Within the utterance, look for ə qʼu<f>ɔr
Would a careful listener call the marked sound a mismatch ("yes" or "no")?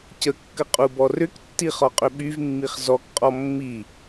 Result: yes